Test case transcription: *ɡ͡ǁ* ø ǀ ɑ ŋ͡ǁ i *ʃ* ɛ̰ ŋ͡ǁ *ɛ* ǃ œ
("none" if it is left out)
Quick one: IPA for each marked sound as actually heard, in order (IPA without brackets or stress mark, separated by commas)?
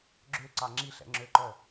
ɡ͡ǁ, ɬ, ø